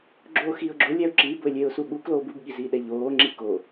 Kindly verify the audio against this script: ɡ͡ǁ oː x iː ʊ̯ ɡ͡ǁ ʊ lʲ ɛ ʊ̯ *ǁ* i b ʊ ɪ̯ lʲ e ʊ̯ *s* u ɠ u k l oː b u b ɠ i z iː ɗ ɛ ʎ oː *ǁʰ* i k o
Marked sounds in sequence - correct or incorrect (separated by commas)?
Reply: correct, correct, incorrect